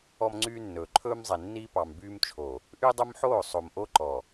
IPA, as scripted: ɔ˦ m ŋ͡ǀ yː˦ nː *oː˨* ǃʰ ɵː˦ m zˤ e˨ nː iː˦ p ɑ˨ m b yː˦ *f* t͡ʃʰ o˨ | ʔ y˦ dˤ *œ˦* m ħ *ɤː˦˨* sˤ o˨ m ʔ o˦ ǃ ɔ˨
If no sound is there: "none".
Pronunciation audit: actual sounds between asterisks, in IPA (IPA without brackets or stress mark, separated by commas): ɵː˨, m, ɵ˦, oː˦˨